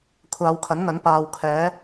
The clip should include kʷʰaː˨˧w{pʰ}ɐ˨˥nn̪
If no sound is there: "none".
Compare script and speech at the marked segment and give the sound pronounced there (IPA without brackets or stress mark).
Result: kʰ